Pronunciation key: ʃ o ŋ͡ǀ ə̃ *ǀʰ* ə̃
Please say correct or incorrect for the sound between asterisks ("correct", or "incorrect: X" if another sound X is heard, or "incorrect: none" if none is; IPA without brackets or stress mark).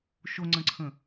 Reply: correct